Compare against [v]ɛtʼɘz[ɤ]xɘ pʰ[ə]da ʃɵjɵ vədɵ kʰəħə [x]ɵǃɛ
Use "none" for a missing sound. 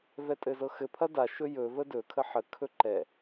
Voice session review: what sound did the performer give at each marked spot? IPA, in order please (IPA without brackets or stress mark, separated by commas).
v, ɤ, ɐ, kʰ